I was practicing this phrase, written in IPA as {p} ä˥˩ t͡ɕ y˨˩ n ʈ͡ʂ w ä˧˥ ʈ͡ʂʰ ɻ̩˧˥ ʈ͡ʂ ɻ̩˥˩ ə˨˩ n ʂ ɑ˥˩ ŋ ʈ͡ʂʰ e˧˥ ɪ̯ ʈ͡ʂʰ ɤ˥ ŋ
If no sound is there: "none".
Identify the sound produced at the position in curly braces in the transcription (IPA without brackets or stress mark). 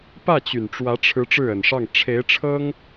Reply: p